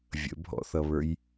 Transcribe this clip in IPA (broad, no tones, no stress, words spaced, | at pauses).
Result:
vʲə̰bʱɔ̰θʌβə˞j